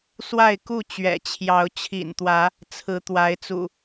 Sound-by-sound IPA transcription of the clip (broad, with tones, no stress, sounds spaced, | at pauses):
s w a˥˨ ɪ̯ k u˥˨ t͡ɕ ɥ ɛ̰˨˩ t͡ɕʰ j ɑ˨˦ ʊ̯ t͡ɕʰ ḭ˨˩ n t̪ w ä˨˦ | t͡sʰ ɹ̩˨˦ t̪ w a˨˦ ɪ̯ t͡s ṵ˨˩